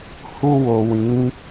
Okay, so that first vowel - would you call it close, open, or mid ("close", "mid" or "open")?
close